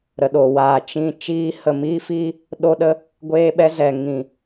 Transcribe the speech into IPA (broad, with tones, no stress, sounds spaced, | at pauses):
ɾ ə˨ ɗ o˨ w aː˨ t͡ʃ ĩ˧ t͡ʃ iː˧ h ə˨ m iː˦ f iː˦ | ɗ o˦ ɗ ə˦ | ɡʷ eː˦ ɓ ɛ˦ z ɛ˨ ŋ ĩ˨